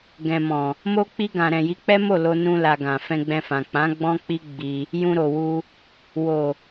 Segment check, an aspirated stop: absent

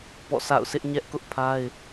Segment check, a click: absent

